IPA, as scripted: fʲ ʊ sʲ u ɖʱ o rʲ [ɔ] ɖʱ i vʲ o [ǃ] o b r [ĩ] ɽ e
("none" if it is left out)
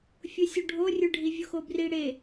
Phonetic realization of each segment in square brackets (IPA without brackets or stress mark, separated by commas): ʊ, x, i